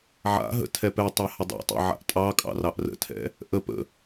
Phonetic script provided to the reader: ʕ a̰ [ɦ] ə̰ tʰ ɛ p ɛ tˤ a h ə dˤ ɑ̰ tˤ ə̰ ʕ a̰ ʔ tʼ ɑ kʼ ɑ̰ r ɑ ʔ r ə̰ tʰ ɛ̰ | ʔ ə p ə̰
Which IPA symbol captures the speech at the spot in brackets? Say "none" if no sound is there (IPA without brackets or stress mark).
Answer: ɦ